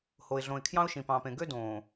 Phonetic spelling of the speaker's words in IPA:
ho˨ɪ̯ɮõ˨ɪ̯ kʰjɑ̃˦ʊ̯ʃĩ˨pɑ̃˨pẽ˨ ɡø˦dõː˨

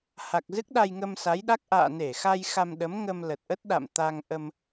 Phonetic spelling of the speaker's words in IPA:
ha˨˩k̚zɨ˦˥k̚ ɗa˧jŋə˧msa˨˦jɗa˦˥k̚ ʔa̰ː˧˨ne˧˩xa˧j xa˧mɗə˨˦m ŋə˧mlə˨˩t̚ʔə˦˥t̚ ɗa̰˧˨mt̪a˧ŋ ʔə˧m

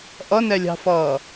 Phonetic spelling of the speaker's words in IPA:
ʔʌnɛlʲɑ̤fʌː

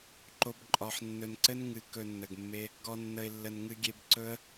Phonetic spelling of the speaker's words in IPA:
ǃo˨b ǃʼɒ˨ħ nːɵ˨nǀɘ˦n ŋɨ˨ kɵ˧nːə˨ɡmːe˦ | ɡɔ˨nːə˨ɪ̯ lːə˨nŋɨ˧ɡʲe˧b ǀɵ˦ə̯

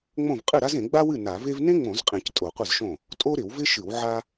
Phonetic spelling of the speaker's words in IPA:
ŋ͡mõ˥˩v qʼɨ˥˩ɾa˥zẽ˧˩˧ ɡ͡ba˥wɨ˥˩ na˧˩˧ve˥v nẽ˥ŋ͡mõ˧˩˧zqʼẽ˧˩˧c tʼo˧˩˧qʷɨ˥˩zʃõ˥˩ | tʼo˥ɾɪ˧˩˧wvɪ˥ʃɨ˧˩˧w ʕa˥

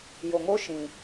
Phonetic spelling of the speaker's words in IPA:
jo˨ŋo˦ ʃĩ˨

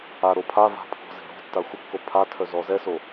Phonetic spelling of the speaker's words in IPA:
aɾo pʰava̤pʰɔ̤ze̤ ɾɔ̤tːa xʷəkːo pʰatʰœzɔ zɛso

